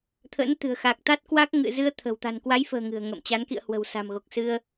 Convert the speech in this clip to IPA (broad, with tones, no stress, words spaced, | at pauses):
t̪ʰə̰ː˧˥nt̪ɨ̤˨˩ə̯ xa˨˩k̚ t̪a˦˥t̚kwa˦˥k̚ ŋɨ̰˧˨zɨ˧ə̯ t̪ʰə̤˨˩w t̪a̤˨˩nkwa˨˦jfə̤ː˨˩ ŋɨ̤˨˩ə̯ ŋə̰ː˧˨mt͡ɕa˨˦n kḭ˧˨ə̯hwə̤˨˩w sa̤˨˩mɣo˨˩k̚ sɨ˧ə̯